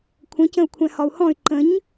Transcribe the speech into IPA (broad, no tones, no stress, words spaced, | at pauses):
kʷʰə̃ cə̃u̯kʷʰɛ̃hɒu̯hɔ̃y̯ ǃə̃ɲ